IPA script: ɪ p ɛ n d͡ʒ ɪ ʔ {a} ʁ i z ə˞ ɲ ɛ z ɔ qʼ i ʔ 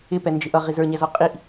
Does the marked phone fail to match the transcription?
yes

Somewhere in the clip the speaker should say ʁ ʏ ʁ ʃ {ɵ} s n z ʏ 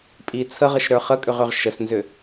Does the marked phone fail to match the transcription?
yes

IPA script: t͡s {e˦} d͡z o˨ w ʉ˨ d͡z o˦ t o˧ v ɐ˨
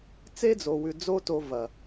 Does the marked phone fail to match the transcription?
no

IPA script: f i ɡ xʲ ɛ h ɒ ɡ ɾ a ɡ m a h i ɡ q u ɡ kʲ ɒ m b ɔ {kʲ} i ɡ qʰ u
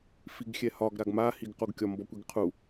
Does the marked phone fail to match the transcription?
yes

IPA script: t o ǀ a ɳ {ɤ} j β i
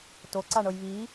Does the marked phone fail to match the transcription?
no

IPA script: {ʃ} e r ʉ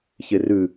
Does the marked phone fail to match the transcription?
yes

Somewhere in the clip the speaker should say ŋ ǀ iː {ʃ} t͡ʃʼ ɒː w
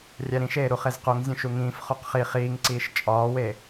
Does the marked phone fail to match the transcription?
no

